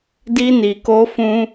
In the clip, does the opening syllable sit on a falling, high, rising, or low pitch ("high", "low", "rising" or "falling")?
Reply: high